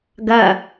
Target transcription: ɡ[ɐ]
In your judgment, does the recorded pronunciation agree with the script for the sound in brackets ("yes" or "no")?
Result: yes